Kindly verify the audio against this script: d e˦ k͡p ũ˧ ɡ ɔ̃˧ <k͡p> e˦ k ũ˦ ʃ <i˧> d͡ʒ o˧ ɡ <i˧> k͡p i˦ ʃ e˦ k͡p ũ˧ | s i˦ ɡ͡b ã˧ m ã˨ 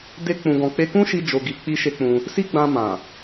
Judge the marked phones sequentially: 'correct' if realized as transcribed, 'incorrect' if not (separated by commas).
correct, correct, correct